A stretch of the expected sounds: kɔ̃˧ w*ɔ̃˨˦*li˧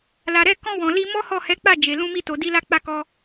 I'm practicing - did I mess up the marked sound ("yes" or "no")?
yes